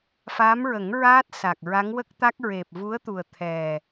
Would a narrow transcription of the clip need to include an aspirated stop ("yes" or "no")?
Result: yes